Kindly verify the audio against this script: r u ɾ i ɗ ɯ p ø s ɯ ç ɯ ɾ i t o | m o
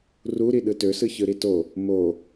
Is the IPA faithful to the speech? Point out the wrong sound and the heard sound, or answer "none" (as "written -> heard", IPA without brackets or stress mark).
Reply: p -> t